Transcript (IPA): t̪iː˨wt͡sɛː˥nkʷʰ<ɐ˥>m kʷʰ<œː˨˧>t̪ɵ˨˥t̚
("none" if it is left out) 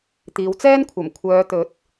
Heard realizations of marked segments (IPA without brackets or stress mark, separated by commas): ɐ˨˩, œː˨˧